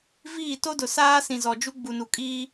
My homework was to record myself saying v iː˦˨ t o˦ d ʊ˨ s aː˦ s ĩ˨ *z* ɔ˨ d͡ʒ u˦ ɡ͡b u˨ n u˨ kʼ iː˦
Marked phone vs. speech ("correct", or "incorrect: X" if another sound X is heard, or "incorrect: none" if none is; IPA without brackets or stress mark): correct